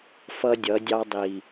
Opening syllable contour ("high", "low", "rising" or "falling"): high